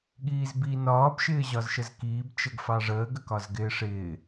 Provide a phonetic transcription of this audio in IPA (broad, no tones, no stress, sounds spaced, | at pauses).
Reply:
ɠ iː z b i n ɒː b ʃ ɪː ʑ ɒ z ʃ ə z k iː b t͡ʃ ə ɡ f ɑ ʐ əː ɡ ə k ɒ z ɡ ɪː ʂ ɪː